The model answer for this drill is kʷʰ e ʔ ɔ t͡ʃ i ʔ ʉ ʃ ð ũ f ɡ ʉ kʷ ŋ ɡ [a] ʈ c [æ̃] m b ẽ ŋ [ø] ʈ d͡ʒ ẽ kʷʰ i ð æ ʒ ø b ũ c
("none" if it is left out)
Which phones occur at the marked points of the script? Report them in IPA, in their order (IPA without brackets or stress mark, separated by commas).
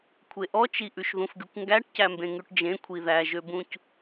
æ, æ, ʉ